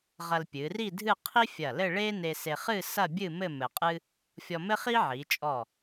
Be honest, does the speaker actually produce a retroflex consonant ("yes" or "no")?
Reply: yes